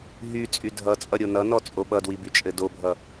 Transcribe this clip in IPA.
ɦ y t͡sʼ y dʱ ʌ t͡sʼ ʌ ɾʲ o n ʌ n ɔ t͡sʼ o ɓ ʌ d w i b y t͡ʃʼ ɘ d o bʱ ʌ

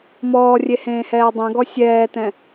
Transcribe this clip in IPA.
m ɔː rʲ e h ẽː h ɛː dˤ ɛ̃ ɡ ɔ sʲ ɛː t ɛ̃

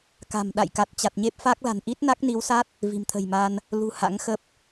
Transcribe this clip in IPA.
k a̤˨˩ m ɗ a̰˧˨ j k a˨˩ t̚ t͡ɕ a˨˩ t̚ ɲ e˦˥ p̚ f a˦˥ k̚ l a̤˨˩ n ʔ i˦˥ t̚ n a˦˥ k̚ n i˨˦ w s a˦˥ t̚ | v i̤˨˩ m t̪ʰ ə̤˨˩ j m a˧ n | l ṳ˨˩ h a̰˧˥ ŋ x ə˦˥ p̚

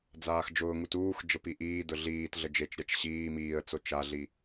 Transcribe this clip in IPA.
d͡z aː x d͡ʒ ʊː ŋ u t uː x d͡ʒ ə p i ʔ iː d ʊ ɮ iː t ɮ ə d͡ʒ e t͡ʃ ɾʲ a t͡ʃ ɕ iː m iː ə̯ t͡s o t͡ʃ a ɮ i

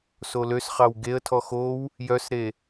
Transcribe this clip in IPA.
s o l ø s χ ɑ w ɡ e ə̯ tʰ ɔ x o w | j œ s ɾ e

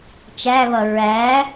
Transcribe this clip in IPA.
t͡ʃ æ β ʌ ɹ æ

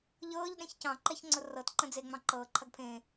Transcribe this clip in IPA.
ʎ ɤː ʎ ɗ ẽ ç c ɑ̃ ǃ ɛ ç ŋ͡ǀ ʊ r ɤ t ǃ ə̃ d͡z e ŋ͡m ɑ̃ ǃ ɤː ǃʰ ɐ ɡ pʰ ẽː

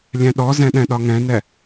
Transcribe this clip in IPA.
lʲ ɛ̃ ɗ ɔ z ɛ̃ ɗ ɛ̃ ɗ ɒ ŋ ɛ̃ n ɛ

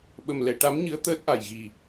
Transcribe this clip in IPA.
ɓ ə˨˩ m l ɛ˨˩˨ ʈ a˧˥ m ɲ ɨ˧˥ ə̯ t̪ əː˦˥ t̚ ʔ a˨˩ j ɣ i˨˩

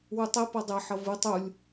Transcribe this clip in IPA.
w u tˤ e p ʌ dˤ ɛ ħ ʌ v ɯ tˤ u lʲ

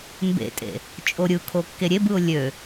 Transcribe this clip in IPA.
m b ḛ tʼ ḛ | t͡ʃʼ o ɾʲ ɯ kʰ o kː e ɾʲ e b ɯ ʊ̯ lʲ ø

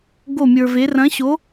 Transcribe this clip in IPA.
ɡ o˥˧ mʲ ə˞˧ v e˧˥ r ɐ̃˧˥ ɕ o˧˥

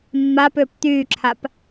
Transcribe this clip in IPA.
mː a p ʏː p t̪ yː ǁʰ a p

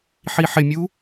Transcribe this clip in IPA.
ħ i ħ ɪ mʲ u

